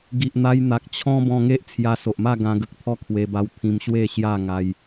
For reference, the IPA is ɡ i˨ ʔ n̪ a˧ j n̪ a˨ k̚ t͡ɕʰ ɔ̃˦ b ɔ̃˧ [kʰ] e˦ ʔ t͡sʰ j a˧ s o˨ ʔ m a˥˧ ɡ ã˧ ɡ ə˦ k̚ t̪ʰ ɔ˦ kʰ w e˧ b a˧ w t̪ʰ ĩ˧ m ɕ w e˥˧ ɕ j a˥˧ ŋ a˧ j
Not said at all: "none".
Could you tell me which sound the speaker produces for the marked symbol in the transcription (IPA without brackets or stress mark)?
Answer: ŋ